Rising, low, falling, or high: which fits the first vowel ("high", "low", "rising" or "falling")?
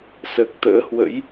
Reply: low